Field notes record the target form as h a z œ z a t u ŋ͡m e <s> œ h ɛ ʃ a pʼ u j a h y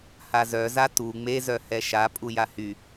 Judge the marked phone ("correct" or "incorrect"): incorrect